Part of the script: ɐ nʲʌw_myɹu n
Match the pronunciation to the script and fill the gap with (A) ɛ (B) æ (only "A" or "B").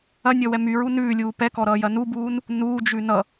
A